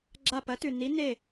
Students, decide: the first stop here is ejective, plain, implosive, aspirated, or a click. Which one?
click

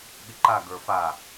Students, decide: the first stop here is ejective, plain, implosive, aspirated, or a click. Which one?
implosive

